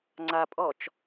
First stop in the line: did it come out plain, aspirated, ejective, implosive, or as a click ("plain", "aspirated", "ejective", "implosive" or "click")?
click